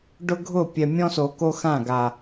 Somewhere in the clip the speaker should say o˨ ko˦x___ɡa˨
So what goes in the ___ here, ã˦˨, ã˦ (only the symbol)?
ã˦˨